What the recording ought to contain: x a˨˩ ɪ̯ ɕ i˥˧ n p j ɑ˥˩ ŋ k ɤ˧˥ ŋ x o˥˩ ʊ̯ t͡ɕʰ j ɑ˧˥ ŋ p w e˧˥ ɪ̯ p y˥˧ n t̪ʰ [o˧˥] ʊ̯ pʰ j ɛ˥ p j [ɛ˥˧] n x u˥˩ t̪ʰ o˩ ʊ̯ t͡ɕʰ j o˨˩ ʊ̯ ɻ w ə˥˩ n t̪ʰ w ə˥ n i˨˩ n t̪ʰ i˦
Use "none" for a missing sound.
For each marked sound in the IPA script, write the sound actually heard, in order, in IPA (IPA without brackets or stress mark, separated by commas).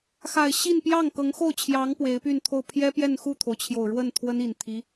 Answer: o˥˩, ɛ˥˧